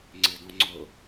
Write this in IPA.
ŋ͡ǀ ɪ d ɔ̃ ŋ͡ǀ ʊ

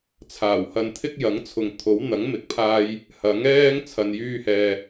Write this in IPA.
t͡sʰ aː˨˩ w h ɐ˧ n t̪ʰ ɪ˥ k̚ j ɐ˨˥ ŋ t͡sʰ ʊ˨ ŋ t̪ʰ o˨˥ w n̪ ɐ˨˥ ŋ m ɪ˨˥ k̚ pʰ aː˧ j | h ɐ˨˥ ŋ ɛː˥ ŋ t͡sʰ ɐ˨ n j yː˧ h ɛː˨

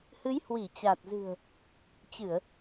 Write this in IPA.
h ɨ˨˦ j h w i˧˩ t͡ɕ a˨˩ t̚ z ɨ̤˨˩ ə̯ | t͡ɕ ɨ˧˩˨ ə̯

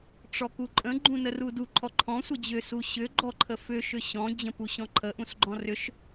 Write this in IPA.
ʈ͡ʂ ɔ k u ǃʼ ə̃ ɡ͡ǃ ũ n ə r u d u ǃʰ ɔ ǃʰ ɔ̃ sʷ ə d͡ʑ ʏ s u ɕ ʏ ɡ͡ǃ ɔ ǃʰ ə f ʏ ʃ ʏ ɕ ɔ̃ d͡ʑ ə̃ p u ɕ ɔ̃ ǃʰ ə ʔ ũ s ɡ͡ǃ ɔ̃ r ʏ ʃ

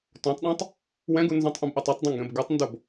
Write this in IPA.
t õ tˤ ɗ ã tˤ | w ɛ̃ ɡ u n z õ tˤ ʔ ũ b ʔ o tˤ e tˤ dˤ õ ŋ ɡ ɛ̃ b ɡ ɯ tˤ n d o b

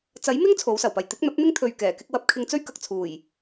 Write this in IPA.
t͡s ɐ˨˥ j m ɪ˥ ŋ t͡sʰ o˨˥ w s ɐ˨˩ w p ɐ˨˩ j t̪ ɪ˨˥ k̚ n̪ ɐ˨˥ p̚ n̪ ɪ˥ ŋ t̪ʰ ɵ˧ ɥ k ɛː˨˩ k ɪ˥ k̚ w ɐ˧ p̚ kʰ ɪ˧ ŋ t͡s ɵ˥ ɥ k ɐ˨ k̚ t͡sʰ uː˨˩ j

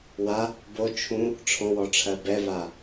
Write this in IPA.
w a | b o t͡ʃʰ ũ | ʈ͡ʂʰ ɔ̃ w ɔ ʈ͡ʂʰ ɜ b ɛ v a

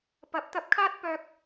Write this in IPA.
p ɐ˨˥ p̚ t̪ ɐ˧ p̚ kʰ aː˥ t̚ p œː˧ k̚

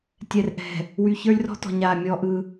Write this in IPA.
tʲ ɛ˨ r ʔ ɛ̤˨ | w y˨ ç ə˞˦ lʲ r ɔ̤˦ t ɔ̤˨ ɲ aː˨ mʲ ɔ˦ ʔ ɯ˦

